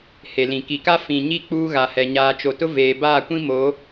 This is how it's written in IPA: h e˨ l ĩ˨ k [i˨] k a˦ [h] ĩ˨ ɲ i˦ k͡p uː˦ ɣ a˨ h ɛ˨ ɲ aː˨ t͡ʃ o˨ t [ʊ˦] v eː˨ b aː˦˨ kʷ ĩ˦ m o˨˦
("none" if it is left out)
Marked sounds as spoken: i˨, f, ʊ˦

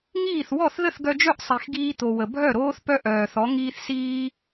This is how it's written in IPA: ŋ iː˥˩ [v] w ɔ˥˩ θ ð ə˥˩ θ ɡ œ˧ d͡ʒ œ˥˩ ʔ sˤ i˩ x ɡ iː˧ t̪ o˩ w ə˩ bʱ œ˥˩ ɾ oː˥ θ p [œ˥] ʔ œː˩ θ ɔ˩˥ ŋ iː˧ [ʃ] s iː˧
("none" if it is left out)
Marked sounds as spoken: θ, œ˥, θ

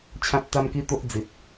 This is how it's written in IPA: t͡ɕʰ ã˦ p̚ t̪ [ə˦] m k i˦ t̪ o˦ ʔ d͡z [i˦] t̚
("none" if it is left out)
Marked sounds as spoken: a˦, i˨

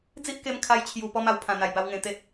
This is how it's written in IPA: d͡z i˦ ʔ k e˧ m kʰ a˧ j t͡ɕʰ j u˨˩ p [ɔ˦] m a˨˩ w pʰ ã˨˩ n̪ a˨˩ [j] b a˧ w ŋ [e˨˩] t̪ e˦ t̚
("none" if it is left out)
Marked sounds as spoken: ɔ˦, j, ẽ˨˩

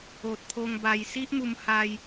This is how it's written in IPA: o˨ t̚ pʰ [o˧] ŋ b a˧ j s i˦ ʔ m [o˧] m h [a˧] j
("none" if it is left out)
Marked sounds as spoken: o˧, u˧, a˧

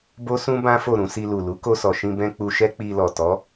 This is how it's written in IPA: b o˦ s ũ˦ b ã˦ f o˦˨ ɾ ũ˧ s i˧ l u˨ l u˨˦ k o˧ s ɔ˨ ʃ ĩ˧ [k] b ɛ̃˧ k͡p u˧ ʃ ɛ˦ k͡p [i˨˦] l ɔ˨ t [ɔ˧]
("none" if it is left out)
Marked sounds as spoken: none, i˧, ɔ˨˦

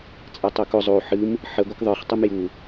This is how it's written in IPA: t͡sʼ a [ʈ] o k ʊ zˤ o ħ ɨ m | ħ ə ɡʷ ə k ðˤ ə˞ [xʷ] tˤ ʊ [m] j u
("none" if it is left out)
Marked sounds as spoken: tˤ, χ, m

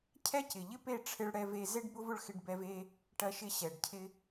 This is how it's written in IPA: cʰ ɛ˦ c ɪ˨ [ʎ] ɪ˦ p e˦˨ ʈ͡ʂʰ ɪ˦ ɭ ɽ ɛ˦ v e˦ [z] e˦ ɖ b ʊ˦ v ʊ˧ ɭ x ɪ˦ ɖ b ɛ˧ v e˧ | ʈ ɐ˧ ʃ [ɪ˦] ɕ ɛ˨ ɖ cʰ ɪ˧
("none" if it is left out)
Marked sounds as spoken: ʎ, z, ɪ˧

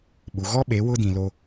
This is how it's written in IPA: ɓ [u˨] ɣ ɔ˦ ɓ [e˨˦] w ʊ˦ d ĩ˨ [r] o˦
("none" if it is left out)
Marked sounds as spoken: u˨, e˨˦, l

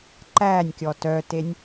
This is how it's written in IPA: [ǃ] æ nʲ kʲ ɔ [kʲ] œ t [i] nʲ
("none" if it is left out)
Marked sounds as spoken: ǃ, t, e

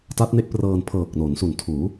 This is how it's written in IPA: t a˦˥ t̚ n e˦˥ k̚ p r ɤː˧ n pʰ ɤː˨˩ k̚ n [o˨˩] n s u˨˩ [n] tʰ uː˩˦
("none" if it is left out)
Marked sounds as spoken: o˩˦, n

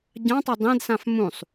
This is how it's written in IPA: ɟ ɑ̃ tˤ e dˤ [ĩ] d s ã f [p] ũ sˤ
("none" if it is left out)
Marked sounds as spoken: ẽ, m

